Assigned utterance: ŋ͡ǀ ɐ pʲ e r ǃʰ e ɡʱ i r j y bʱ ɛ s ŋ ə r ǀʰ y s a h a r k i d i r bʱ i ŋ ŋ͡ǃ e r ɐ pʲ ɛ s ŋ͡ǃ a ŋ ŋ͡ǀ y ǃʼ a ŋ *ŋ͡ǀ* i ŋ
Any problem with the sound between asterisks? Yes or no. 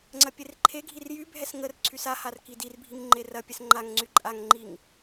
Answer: yes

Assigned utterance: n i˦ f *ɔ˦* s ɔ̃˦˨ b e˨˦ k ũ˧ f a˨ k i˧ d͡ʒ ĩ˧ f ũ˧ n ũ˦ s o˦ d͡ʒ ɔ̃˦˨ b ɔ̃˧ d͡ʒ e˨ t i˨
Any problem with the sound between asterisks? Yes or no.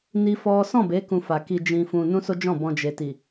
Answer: no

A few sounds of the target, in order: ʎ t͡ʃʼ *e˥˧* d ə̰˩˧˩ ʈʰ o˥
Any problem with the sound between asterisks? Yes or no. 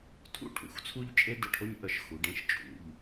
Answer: yes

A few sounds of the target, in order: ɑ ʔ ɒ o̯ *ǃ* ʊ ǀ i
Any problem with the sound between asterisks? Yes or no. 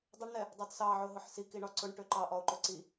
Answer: no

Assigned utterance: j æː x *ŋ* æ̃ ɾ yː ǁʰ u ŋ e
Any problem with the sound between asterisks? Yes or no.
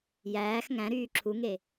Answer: no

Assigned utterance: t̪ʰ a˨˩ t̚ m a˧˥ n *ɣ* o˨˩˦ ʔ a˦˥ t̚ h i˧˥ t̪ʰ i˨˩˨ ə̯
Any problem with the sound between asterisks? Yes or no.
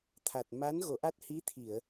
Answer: no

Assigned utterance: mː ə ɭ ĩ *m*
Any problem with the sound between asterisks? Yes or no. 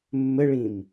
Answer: no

